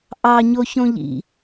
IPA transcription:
ʔ ɑ ɲ o ç õ ʎ ḭ

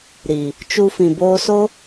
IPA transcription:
ɾ i˨ | t͡ʃ u˦ f ĩ˨ b oː˧ s o˦

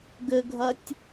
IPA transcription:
ɡ ɘ ɡʱ ɐ tʲ

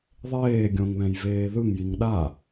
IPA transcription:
ðˤ eː ɡʲ õ ŋ β ɛ̃ j v eː ð ɯ ŋ j i ŋ ɗ a

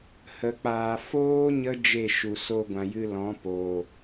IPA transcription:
h ə˨ k͡p aː˨ f oː˦ ɲ ə˦ d͡ʒ e˦˨ ʃ u˨ s o˧ ɡʷ ã˨ j ɨ˧ l ɔ̃˨˦ p oː˨

